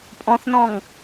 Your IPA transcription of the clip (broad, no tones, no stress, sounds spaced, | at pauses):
pʼ ɔ̃ θ n ɔ̃ ŋ